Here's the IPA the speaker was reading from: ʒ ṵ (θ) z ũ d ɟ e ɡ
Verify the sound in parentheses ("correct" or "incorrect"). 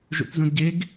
correct